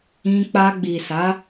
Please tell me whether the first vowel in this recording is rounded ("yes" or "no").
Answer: no